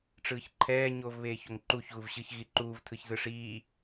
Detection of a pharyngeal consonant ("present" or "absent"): absent